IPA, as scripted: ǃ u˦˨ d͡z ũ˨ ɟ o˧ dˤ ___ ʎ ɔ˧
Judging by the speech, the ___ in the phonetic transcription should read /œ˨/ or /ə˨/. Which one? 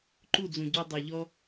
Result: œ˨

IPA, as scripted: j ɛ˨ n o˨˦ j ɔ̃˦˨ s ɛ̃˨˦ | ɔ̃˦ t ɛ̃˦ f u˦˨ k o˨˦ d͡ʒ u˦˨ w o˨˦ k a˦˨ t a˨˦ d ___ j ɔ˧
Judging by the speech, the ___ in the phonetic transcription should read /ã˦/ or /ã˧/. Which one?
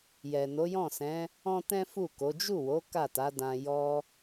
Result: ã˧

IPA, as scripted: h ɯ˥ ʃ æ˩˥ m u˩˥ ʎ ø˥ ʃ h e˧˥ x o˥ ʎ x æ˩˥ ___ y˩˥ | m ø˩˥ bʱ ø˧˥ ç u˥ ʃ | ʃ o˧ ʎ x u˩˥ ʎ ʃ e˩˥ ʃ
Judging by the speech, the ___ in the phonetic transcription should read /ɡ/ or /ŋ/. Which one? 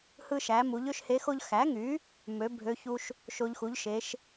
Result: ŋ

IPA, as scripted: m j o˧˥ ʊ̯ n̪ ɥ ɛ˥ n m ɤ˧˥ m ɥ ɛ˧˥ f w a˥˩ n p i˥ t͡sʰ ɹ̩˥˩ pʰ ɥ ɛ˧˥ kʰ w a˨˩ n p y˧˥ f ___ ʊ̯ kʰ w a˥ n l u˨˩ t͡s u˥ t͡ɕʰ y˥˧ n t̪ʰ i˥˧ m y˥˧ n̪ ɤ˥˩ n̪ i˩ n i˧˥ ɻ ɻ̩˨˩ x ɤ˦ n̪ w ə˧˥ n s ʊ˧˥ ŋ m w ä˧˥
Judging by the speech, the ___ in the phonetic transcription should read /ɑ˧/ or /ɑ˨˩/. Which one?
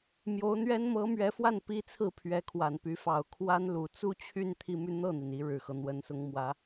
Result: ɑ˨˩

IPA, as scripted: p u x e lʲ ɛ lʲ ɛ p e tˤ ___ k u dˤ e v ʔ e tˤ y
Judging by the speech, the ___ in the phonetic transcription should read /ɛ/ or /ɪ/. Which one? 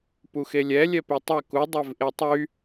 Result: ɛ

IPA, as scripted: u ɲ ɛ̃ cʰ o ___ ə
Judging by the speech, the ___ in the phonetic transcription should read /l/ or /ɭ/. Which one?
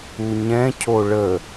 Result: ɭ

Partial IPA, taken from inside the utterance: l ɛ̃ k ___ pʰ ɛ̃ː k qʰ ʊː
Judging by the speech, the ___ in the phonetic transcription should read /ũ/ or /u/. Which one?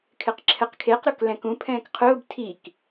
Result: ũ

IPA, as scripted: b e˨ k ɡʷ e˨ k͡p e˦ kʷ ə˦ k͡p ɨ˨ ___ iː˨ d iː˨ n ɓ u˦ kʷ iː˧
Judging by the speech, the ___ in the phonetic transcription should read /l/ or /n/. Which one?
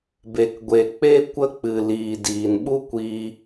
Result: l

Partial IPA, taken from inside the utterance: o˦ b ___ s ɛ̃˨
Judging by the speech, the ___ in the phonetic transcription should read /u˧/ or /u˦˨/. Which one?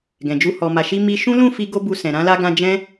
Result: u˧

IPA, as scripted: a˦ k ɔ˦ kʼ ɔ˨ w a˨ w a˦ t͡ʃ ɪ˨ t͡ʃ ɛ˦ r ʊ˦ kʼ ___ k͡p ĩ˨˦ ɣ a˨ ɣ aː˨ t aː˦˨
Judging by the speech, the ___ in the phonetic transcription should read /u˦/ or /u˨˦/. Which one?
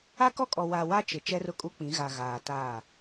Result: u˦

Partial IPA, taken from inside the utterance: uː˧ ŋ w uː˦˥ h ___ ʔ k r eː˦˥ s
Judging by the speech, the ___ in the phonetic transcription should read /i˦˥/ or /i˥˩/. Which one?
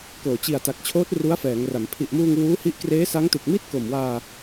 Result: i˦˥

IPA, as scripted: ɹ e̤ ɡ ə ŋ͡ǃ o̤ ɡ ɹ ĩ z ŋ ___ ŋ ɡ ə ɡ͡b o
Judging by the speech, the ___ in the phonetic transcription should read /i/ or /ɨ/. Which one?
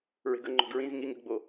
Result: i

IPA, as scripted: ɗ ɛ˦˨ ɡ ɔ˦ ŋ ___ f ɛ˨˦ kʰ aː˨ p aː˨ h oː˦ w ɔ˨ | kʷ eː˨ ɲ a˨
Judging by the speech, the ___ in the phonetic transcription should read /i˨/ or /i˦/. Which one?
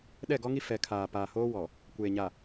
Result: i˦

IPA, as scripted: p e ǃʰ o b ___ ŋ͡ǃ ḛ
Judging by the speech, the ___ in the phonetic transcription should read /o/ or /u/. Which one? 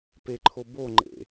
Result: o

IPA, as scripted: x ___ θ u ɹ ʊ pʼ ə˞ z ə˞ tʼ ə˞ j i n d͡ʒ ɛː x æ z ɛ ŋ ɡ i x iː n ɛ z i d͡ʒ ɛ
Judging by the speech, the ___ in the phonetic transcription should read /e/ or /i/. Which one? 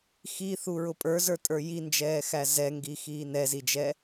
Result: i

